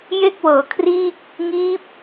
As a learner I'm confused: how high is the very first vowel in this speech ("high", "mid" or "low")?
mid